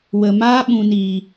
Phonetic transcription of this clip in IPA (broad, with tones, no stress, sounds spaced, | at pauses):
w ə˨ m aː˦ ɓ ũ˨ n iː˨